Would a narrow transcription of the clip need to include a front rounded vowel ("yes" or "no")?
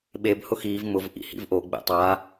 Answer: no